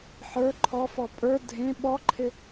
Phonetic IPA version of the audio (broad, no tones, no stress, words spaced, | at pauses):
ħə˞ ǃʰɔfɔ pʼə˞ dʱẽ ɓɔǃʰɪ